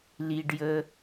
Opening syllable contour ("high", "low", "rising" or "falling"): high